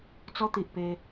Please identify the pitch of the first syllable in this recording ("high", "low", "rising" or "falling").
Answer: high